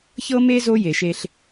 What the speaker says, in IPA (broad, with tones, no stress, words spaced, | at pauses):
çɤ˥me˥zo˦ je˨ʃe˥ɬ